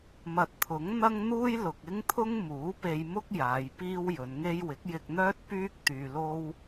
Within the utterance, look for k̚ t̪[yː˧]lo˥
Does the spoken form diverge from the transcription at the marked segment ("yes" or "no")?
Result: no